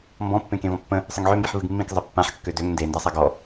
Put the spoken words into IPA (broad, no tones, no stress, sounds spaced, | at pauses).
m b ɔ̃ pː ẽ k ẽ v ɔ̃ pː ə̃ | sˤ ə ŋ ʕ ø m b i ħ v ɨ ɡ mː ĩ k zˤ ɨ pː ã ħ kː ø d ø ŋ n d e n d a sˤ a ɡ ɔ